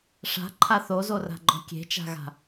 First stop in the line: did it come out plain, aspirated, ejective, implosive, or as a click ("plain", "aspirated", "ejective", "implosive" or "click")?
click